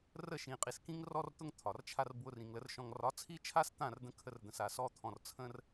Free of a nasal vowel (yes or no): no